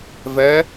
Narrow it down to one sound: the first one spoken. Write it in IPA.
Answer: v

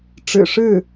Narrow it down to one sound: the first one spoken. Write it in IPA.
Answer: ʈ͡ʂ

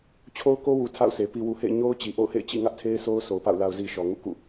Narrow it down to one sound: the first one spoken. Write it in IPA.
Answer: t͡ɕʰ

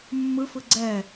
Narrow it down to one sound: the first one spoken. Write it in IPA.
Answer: mː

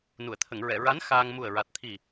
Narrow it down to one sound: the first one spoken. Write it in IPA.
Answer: n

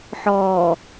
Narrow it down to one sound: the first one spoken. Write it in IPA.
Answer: ħ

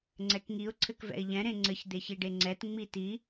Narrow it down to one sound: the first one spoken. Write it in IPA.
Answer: ŋ͡ǀ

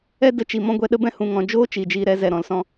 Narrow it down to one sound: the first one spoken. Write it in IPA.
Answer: ɛ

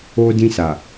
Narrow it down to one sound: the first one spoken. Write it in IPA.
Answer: o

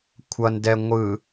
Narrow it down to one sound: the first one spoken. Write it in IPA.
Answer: kʷʰ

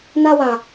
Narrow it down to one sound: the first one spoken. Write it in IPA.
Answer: n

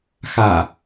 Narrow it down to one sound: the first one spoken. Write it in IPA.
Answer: x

